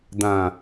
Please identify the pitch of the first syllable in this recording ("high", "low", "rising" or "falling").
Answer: low